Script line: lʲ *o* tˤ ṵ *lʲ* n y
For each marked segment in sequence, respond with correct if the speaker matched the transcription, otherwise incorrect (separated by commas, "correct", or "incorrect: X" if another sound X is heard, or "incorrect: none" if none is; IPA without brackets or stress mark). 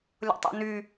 incorrect: o̰, incorrect: none